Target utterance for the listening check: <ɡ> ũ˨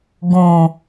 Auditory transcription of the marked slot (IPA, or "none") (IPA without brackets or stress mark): ɡ